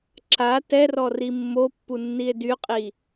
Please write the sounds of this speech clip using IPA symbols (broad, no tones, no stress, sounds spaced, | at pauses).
ǁ a t ɛ r ɔ r i mː o pː u nː i e̯ d y qʼ i